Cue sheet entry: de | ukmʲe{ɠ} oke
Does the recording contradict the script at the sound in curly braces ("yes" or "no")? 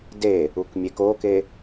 yes